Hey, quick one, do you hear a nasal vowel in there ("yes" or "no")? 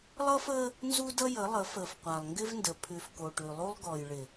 no